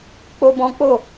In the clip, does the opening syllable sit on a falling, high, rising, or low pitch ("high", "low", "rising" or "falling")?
high